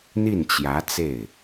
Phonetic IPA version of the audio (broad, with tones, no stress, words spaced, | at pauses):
n̪i˥˩nt͡ɕjä˧˥t͡se˥˩ɪ̯